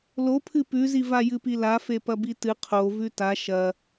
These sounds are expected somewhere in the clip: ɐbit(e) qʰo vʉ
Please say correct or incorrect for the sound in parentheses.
incorrect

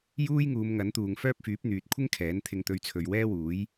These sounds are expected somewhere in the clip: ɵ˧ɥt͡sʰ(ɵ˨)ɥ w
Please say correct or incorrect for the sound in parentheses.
correct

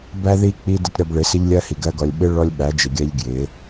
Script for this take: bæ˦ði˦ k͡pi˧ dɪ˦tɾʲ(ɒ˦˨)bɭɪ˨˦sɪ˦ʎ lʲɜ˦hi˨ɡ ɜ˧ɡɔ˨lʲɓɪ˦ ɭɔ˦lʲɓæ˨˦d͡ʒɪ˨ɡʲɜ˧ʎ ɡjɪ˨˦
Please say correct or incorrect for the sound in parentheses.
incorrect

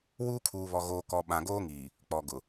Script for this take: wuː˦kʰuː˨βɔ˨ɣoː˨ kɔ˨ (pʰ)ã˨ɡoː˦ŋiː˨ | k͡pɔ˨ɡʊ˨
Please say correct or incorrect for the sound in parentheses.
incorrect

